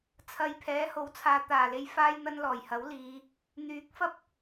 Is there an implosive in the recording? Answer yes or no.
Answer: no